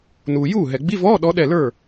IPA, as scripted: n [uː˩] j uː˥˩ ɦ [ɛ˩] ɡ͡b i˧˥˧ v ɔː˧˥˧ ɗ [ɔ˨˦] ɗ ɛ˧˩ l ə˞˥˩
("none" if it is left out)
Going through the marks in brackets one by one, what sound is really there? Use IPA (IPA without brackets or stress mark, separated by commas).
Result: uː˩, ɛ˩, ɔ˨˦